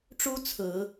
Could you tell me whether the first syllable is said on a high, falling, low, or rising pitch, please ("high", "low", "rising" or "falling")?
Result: high